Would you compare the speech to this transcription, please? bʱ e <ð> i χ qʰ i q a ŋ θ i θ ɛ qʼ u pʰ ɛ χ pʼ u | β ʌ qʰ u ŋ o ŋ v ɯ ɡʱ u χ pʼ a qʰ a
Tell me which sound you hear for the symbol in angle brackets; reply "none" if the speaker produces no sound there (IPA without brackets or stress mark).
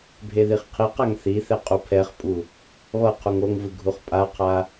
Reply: ð